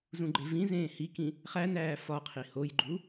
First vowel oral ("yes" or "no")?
no